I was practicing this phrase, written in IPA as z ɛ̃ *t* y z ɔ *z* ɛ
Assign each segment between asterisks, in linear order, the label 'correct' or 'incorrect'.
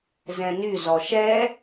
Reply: incorrect: n, incorrect: ʃ

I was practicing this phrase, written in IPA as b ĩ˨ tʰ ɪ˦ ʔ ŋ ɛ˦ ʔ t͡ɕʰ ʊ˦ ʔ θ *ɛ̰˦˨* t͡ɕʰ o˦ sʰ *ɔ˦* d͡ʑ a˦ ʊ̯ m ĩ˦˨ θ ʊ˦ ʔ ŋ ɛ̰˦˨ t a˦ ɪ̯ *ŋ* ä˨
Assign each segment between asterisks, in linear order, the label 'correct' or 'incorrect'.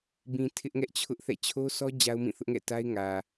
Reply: correct, correct, correct

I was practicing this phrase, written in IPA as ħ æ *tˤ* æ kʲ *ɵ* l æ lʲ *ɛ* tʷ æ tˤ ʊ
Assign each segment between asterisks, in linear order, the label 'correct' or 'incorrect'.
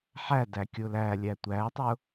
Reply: incorrect: d, incorrect: ʊ, incorrect: æ

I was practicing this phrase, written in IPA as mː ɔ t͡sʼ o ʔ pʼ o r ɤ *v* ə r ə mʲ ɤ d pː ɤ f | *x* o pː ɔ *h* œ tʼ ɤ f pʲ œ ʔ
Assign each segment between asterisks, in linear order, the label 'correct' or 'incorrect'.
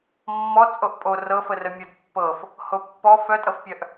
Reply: incorrect: f, incorrect: h, incorrect: f

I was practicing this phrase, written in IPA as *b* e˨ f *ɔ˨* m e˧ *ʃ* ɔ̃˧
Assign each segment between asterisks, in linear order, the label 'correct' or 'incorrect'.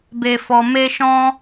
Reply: correct, correct, correct

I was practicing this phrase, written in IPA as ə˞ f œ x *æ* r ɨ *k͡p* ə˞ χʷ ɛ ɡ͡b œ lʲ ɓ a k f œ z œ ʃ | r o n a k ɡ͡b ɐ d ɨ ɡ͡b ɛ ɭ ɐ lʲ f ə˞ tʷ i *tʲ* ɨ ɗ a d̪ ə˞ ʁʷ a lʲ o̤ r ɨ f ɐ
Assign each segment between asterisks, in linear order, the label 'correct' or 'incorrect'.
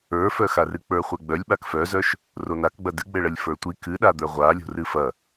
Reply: incorrect: a, correct, incorrect: k

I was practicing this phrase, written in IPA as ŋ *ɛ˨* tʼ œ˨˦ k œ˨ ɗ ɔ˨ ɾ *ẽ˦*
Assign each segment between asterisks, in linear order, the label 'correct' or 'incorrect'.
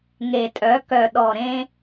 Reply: incorrect: e˨, correct

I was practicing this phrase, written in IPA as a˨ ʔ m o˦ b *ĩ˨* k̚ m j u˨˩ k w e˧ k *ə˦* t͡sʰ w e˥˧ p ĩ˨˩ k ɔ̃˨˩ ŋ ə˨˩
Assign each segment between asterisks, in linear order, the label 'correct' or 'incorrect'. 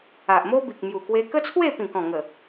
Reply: incorrect: i˨, correct

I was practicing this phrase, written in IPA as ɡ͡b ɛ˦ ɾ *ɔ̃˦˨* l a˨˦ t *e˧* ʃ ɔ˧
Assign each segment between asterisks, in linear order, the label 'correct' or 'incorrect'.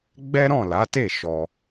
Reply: correct, incorrect: e˦˨

